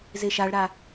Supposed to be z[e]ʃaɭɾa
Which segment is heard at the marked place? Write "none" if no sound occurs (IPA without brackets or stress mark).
e